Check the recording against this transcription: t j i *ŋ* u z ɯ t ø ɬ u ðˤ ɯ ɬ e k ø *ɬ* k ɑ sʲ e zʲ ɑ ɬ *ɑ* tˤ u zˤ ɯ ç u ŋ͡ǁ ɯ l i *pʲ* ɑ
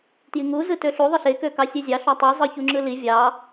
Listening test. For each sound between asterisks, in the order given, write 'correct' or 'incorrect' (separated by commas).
correct, incorrect, correct, incorrect